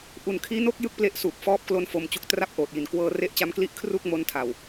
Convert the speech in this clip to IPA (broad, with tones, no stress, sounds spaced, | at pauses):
ʔ u˨˩ n kʰ iː˦˥ n o˥˩ k̚ j ɯ˥˩ k̚ p l e˦˥ ʔ s uː˨˩ p̚ f ɔː˦˥ p̚ k l o˦˥ n f o˧ m t͡ɕ u˦˥ k̚ t r a˦˥ p̚ ʔ oː˨˩ t̚ j i˨˩ n k w ɤː˧ r e˦˥ ʔ t͡ɕ a˦˥ m k l i˦˥ ʔ kʰ r u˥˩ k̚ m o˦˥ n tʰ a˨˩ w